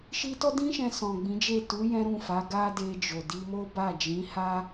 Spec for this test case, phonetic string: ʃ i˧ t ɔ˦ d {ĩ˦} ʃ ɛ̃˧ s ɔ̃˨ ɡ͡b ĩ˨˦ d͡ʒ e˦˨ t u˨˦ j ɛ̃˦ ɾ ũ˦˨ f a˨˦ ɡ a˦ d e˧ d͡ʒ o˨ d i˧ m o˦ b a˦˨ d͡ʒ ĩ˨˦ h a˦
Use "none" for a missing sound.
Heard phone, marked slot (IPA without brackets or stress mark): ĩ˦